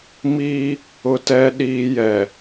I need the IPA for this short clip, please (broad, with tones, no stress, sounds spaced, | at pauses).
m iː˦ | ʊ˦ t ɛ˦ ɗ iː˦ j ɛ˨